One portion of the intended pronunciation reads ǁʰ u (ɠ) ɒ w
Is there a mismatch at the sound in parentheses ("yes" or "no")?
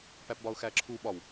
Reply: yes